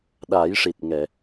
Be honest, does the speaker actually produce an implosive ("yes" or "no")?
yes